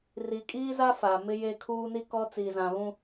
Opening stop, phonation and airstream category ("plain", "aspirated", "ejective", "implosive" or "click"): ejective